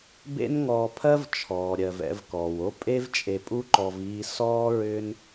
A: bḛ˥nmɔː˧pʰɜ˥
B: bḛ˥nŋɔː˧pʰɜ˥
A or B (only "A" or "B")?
B